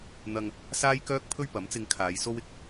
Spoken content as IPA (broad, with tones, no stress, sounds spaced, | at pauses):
n̪ ɐ˧ ŋ | s aː˥ j k œː˥ k̚ pʰ ɵ˥ ɥ p ɐ˨˥ m t͡s ɪ˧ ŋ kʰ aː˨˧ j s o˥ w ɪ˧ k̚